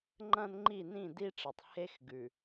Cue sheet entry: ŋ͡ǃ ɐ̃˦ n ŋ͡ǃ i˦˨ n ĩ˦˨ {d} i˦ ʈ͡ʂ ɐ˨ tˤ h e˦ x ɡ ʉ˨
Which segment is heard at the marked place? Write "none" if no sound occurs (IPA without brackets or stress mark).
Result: d